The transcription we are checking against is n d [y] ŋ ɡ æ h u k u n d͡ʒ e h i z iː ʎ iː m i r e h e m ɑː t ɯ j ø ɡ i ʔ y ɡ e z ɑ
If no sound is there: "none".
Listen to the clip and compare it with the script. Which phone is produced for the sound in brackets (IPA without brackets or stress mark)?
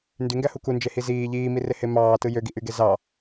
y